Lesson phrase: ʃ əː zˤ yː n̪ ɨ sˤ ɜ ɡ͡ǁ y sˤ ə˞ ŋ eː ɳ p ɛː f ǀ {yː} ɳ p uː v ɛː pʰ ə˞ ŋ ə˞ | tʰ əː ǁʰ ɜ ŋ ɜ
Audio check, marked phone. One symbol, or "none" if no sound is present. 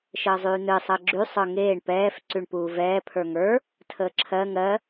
y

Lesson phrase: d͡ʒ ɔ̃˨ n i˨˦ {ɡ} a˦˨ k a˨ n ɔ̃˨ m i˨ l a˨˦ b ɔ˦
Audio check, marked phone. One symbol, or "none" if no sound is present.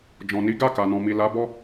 ɡ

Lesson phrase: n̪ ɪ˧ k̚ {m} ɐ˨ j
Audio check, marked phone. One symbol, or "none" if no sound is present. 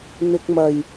m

